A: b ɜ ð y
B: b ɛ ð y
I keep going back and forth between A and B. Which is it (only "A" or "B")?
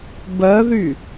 A